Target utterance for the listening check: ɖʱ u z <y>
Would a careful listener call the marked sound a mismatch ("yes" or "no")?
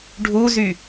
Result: no